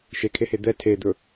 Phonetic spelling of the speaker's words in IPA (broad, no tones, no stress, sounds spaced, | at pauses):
ʃ e kʰ e h e d̪ ɛ tʰ e d̪ ɵ